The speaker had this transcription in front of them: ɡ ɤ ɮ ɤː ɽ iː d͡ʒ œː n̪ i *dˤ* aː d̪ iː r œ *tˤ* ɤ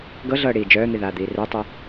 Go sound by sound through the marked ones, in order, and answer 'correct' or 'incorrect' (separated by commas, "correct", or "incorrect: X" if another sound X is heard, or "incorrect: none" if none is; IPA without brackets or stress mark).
incorrect: ð, correct